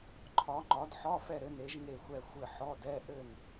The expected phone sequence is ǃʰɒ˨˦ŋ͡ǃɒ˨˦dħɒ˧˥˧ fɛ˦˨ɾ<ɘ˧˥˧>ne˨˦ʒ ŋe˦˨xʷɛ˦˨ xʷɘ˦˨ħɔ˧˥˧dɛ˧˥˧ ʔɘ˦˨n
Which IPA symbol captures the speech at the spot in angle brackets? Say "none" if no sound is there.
ɘ˨˦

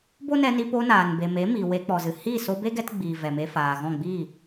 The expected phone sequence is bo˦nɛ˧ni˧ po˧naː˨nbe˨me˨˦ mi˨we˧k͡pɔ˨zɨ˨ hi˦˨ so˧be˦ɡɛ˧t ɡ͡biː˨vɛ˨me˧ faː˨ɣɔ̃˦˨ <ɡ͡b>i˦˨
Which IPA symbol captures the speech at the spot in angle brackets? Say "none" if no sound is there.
ɡ͡b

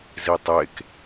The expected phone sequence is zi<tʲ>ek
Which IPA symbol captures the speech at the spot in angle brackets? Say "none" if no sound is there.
tˤ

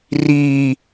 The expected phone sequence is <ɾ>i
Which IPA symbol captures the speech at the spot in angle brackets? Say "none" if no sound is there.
r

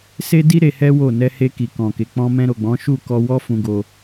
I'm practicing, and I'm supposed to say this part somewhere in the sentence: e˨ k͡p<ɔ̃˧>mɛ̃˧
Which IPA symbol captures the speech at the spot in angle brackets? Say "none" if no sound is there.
ɔ̃˧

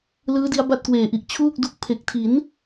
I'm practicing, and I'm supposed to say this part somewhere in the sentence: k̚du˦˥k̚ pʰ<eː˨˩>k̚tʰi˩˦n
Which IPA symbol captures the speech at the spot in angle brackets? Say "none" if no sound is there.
e˨˩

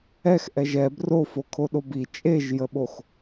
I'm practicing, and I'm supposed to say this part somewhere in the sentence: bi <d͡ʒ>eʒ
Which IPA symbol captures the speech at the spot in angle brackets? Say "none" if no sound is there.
t͡ʃʼ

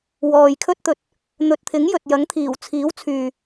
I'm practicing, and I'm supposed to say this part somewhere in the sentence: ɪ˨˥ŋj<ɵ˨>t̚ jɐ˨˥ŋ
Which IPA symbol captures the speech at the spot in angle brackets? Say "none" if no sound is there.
ɵ˨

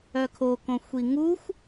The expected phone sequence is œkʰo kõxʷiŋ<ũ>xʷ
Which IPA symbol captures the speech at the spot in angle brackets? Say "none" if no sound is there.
u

